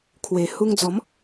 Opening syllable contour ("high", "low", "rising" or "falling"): low